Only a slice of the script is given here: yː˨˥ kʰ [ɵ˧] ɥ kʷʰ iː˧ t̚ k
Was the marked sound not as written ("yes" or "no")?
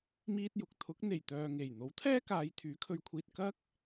no